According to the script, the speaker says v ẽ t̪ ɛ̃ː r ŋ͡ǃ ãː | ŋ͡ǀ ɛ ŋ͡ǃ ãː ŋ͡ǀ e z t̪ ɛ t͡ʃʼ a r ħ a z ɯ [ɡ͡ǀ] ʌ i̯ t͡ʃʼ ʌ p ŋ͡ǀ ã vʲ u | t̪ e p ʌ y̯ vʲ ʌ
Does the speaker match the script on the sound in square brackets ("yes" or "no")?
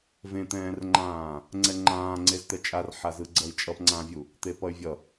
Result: yes